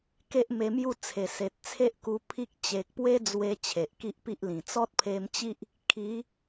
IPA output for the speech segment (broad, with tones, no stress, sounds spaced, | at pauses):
k e˦ ʔ m e˧ m j u˥˧ t͡sʰ e˨˩ s e˨ t̚ t͡sʰ e˦ ʔ k u˧ pʰ i˦ k̚ t͡ɕ e˨ k̚ p w e˦ d͡z w e˧ t͡ɕʰ e˨ ʔ k i˦ ʔ p i˦ ʔ l ĩ˨˩ t͡s ɔ˦ t̚ pʰ e˧ m t͡ɕ i˦ ʔ | kʰ i˨˦